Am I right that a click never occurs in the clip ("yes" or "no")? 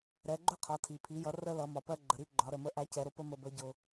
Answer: no